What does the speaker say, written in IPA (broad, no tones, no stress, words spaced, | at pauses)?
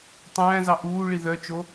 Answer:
tˤæ̃ːzɑ ʔuːɭi ðœt͡ʃo